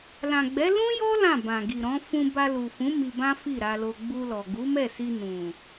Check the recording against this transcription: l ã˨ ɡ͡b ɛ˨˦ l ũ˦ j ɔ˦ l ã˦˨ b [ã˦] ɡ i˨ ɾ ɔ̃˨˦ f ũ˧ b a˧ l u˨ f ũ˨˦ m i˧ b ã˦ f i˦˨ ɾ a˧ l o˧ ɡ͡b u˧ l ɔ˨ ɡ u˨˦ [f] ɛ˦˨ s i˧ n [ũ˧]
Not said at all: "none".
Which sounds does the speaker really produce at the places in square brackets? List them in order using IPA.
ã˨, m, ũ˨

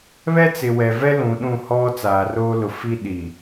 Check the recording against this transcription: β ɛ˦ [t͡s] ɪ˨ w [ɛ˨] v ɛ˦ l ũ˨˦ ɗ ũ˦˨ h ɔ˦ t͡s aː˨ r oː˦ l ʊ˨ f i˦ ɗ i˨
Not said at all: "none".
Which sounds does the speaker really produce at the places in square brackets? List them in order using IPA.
t͡s, ɛ˨

